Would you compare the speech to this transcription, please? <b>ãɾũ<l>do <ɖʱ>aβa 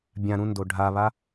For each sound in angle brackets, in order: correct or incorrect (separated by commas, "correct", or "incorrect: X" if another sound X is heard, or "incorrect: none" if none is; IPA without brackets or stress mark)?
incorrect: bʲ, incorrect: n, correct